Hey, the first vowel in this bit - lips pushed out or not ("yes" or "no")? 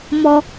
yes